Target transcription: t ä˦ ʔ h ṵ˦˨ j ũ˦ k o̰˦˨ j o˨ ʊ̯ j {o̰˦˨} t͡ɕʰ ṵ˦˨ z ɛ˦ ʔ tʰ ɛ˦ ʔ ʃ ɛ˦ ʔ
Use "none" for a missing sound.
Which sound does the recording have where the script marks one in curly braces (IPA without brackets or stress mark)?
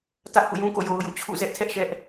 ṵ˦˨